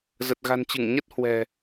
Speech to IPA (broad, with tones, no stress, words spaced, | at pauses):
zə˨˩t̚ɣa̤˨˩nt͡ɕɨ˧˩ŋɲə˦˥t̚ hwɛ̤˨˩